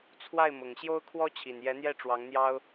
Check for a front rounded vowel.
absent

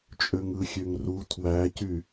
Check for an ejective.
present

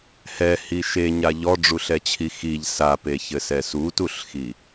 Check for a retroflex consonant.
present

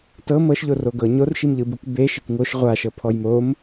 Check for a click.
absent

